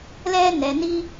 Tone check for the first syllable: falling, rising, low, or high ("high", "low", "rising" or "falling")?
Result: high